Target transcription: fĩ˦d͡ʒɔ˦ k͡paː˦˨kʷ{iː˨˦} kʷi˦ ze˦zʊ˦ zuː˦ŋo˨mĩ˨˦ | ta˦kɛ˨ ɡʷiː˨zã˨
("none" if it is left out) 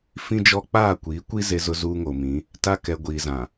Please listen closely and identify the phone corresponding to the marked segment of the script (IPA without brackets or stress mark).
iː˨˦